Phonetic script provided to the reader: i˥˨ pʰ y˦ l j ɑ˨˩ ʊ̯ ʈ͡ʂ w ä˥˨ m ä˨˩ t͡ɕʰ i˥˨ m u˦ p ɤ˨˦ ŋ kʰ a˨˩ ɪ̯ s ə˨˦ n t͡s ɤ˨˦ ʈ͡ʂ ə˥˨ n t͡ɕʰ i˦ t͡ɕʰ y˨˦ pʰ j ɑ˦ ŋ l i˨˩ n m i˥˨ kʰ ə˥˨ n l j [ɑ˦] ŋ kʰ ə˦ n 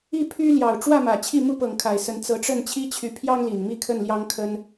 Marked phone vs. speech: correct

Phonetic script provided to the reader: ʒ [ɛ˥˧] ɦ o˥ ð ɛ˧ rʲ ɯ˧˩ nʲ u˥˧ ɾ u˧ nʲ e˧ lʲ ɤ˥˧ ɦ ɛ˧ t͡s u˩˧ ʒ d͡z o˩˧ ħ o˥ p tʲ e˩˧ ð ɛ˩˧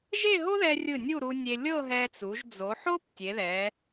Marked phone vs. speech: incorrect: e˥˧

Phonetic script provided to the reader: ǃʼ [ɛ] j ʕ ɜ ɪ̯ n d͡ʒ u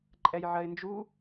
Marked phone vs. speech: correct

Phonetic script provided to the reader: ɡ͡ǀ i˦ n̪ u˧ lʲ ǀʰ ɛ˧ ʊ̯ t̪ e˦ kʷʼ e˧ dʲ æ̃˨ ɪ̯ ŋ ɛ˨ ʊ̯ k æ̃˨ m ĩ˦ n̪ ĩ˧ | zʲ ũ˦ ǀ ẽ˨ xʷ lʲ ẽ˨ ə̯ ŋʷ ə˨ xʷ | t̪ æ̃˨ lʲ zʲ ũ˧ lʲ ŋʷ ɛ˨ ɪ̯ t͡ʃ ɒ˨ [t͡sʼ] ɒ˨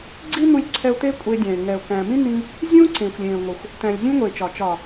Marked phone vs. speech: incorrect: t͡ʃ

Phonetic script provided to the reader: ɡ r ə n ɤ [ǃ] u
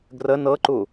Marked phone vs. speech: correct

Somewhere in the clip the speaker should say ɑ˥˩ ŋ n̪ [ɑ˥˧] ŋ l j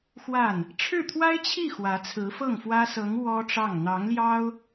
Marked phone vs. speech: incorrect: ɑ˧˥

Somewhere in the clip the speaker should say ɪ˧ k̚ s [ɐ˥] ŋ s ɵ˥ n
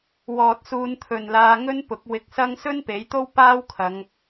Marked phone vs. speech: correct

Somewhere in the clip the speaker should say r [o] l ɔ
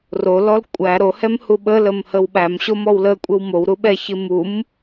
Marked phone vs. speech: correct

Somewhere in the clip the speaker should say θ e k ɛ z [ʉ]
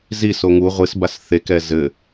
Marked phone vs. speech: incorrect: ɘ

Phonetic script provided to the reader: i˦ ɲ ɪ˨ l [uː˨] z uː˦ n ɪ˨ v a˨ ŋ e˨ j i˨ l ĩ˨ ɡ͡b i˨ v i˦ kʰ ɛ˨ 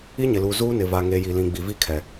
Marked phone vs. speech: correct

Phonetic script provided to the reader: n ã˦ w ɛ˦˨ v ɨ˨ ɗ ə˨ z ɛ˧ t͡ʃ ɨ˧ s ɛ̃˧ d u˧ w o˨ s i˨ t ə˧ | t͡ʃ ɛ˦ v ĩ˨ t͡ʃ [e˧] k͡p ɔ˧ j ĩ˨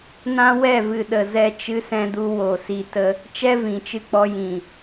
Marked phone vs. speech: incorrect: ɨ˧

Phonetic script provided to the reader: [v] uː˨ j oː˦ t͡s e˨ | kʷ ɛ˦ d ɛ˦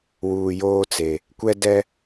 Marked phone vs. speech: incorrect: w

